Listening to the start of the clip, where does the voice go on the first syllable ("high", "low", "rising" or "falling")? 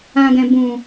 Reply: low